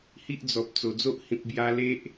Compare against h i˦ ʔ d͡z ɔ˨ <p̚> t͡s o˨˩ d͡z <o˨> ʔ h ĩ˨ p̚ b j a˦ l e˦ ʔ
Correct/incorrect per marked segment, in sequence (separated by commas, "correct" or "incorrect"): correct, incorrect